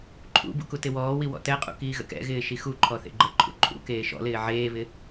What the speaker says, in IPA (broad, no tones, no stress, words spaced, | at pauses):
ǃʰṵbṵ kutɪwɔːwi wɔ̰tɛqʼṵ kiːɣə̰kɛ̰ɣɪː ʃixuǃʰɔ θḛɡ͡ǃəǃʰṵ ǃʼṵ keːʃɔ̰lɪː ʕeːβɪ